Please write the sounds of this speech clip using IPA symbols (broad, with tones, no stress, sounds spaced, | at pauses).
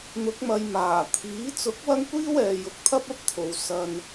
n̪ ʊ˨˥ k̚ m ɐ˨˧ j m aː˨˩ t̪ʰ iː˨˥ t͡s ʊ˨˥ k̚ w ɐ˥ ŋ kʷ iː˥ w ɛː˨ j ʊ˨ k̚ t̪ʰ ɐ˥ p̚ ɐ˥ p̚ t̪ʰ o˨˧ w s ɐ˧ n